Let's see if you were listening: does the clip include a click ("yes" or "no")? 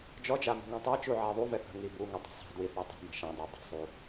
no